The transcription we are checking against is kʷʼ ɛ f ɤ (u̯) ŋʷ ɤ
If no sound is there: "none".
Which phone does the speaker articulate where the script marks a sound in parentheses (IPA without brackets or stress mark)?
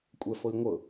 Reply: i̯